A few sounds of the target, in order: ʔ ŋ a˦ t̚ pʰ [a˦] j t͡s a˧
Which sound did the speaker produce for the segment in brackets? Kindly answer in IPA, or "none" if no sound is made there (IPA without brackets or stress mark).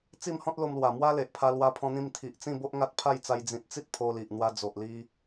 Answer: a˥˧